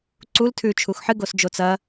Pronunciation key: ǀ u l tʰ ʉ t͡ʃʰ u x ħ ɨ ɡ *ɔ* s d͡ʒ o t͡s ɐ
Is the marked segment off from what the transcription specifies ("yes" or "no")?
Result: yes